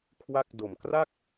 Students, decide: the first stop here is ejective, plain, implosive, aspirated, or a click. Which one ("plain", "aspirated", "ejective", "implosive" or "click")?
aspirated